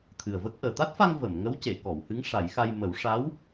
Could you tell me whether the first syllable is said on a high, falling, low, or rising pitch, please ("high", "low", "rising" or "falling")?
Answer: low